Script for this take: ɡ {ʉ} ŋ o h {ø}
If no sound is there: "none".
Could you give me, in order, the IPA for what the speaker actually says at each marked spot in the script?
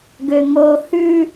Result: ø, ʉ

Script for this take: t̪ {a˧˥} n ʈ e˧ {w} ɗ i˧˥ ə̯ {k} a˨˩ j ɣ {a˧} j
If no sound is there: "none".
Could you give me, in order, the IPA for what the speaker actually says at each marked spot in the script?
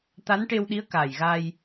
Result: a˧˥, w, k, a˧

